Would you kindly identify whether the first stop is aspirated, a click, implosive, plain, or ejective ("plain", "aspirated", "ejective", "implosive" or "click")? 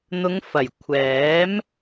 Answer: aspirated